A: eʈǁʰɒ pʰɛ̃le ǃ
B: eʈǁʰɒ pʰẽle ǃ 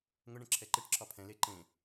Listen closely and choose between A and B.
A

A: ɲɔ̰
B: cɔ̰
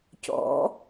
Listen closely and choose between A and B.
B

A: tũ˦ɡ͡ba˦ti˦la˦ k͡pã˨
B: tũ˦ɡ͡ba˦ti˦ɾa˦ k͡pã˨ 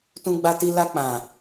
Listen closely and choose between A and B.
A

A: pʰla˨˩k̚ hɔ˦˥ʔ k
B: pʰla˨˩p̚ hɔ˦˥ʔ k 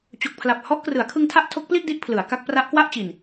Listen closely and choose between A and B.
B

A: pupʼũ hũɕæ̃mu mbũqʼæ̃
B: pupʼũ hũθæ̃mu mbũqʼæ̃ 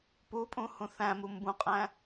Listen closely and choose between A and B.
B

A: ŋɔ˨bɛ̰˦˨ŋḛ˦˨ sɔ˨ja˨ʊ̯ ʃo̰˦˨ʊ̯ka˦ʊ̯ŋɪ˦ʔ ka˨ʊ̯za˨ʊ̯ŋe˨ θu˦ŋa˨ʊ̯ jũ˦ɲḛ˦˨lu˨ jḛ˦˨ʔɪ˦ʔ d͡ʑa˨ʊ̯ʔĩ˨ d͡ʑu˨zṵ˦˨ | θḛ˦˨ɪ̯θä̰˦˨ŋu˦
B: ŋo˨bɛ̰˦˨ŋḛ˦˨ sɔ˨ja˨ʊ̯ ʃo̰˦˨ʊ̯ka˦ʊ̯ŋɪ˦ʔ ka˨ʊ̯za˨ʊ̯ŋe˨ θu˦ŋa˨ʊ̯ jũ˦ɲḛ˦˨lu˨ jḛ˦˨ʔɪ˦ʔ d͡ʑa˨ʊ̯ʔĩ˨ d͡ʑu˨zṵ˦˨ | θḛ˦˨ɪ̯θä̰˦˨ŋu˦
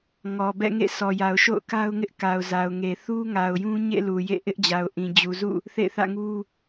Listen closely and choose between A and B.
A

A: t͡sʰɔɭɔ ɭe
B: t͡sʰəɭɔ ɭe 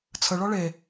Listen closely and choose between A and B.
B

